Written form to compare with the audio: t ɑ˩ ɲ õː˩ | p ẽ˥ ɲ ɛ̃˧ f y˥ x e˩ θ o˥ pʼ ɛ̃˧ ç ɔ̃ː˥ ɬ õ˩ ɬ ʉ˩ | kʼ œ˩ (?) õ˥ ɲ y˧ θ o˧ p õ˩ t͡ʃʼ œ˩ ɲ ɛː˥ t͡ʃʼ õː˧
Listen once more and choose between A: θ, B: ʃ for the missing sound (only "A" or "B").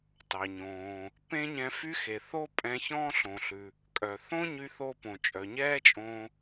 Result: A